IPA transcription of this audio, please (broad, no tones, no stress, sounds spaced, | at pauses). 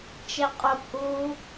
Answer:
t͡ʃ e qʼ œ kʷ ʔ uː